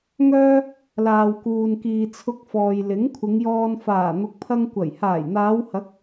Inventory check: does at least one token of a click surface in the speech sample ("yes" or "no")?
no